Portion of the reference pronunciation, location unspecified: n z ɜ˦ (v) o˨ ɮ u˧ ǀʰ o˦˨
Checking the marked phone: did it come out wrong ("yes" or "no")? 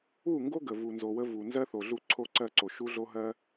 yes